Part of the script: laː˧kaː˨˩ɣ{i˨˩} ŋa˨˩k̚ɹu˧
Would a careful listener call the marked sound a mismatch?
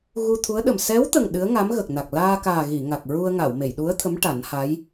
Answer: yes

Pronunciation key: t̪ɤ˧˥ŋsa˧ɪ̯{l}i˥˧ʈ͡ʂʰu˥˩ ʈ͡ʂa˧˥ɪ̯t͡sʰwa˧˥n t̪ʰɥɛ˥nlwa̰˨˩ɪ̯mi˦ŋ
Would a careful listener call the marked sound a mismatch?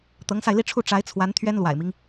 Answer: no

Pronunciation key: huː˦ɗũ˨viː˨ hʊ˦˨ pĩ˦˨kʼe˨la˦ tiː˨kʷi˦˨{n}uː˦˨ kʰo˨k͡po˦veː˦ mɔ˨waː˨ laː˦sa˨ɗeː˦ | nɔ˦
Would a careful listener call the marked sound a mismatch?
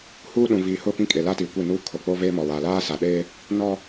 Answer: no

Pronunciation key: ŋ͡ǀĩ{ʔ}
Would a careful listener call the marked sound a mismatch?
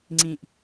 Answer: no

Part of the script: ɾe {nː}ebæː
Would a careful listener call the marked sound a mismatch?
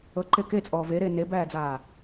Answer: yes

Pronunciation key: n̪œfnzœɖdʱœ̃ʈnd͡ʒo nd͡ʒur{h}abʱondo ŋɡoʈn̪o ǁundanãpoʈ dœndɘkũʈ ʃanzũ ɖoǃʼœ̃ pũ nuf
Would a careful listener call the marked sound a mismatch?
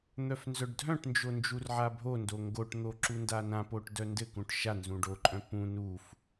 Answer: yes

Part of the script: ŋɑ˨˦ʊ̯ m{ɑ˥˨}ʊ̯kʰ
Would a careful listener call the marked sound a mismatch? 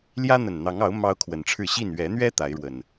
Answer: yes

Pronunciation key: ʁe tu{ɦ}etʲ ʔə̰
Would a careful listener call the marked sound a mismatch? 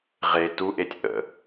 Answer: yes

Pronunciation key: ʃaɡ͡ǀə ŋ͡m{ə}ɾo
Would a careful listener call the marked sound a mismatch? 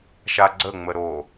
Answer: no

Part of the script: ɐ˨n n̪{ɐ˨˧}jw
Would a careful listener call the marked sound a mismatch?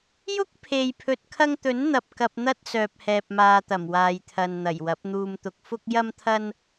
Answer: yes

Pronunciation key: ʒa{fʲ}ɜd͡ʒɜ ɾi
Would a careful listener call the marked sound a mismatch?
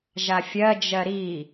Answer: no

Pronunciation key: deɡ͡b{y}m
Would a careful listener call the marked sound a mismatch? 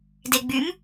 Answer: no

